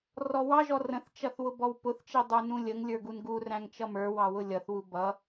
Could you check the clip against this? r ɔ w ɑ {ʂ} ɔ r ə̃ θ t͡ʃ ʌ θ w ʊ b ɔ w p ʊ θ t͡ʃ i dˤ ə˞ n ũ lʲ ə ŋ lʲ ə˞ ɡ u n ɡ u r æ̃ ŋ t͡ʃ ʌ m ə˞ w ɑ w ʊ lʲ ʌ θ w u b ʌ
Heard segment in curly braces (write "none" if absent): ʒ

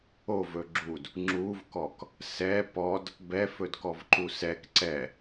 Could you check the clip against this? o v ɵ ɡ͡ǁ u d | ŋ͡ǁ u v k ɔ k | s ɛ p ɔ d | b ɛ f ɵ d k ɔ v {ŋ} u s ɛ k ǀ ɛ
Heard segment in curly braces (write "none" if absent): ǃ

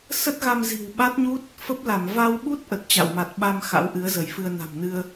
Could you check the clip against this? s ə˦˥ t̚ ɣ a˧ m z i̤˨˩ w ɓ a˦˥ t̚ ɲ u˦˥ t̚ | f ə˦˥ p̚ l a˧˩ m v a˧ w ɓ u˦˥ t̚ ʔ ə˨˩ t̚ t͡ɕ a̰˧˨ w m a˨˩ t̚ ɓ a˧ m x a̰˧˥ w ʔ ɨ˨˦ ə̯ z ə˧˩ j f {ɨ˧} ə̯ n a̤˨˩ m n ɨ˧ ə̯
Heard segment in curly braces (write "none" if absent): ɨ˧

